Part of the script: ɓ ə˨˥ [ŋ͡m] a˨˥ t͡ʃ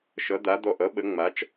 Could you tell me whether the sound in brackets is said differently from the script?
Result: no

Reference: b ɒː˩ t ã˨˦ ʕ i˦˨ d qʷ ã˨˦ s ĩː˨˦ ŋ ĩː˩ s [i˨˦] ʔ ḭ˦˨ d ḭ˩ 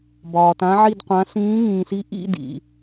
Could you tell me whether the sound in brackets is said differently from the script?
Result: no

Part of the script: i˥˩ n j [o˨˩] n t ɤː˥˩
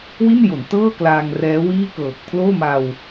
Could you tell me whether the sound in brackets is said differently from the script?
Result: yes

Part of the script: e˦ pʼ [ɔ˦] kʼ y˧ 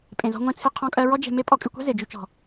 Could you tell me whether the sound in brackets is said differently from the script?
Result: yes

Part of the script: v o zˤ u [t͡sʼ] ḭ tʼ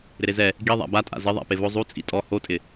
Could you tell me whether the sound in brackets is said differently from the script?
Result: no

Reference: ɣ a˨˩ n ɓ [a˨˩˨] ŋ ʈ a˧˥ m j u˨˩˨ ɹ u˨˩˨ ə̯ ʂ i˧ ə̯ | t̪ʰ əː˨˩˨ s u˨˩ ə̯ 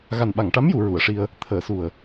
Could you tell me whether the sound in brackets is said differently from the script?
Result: no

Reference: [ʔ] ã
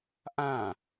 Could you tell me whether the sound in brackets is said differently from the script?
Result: no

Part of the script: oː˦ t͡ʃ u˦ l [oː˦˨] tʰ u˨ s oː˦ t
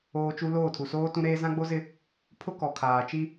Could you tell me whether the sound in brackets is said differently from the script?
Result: no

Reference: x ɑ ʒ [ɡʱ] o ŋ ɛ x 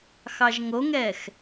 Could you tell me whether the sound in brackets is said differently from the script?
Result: yes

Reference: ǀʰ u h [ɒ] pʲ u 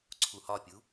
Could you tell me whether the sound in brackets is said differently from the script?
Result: no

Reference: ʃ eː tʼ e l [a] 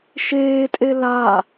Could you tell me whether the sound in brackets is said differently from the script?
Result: no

